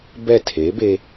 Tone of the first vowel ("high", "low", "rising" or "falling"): falling